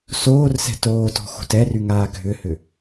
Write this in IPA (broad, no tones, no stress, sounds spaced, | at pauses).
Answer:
s oː r s ɛ̤ t oː t ɔ̤ x o̤ t ɛ r y ŋ aː ɡʱ ʏ h ʏ